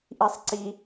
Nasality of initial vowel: oral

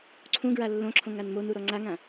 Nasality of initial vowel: nasal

